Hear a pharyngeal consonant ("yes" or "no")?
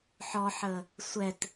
yes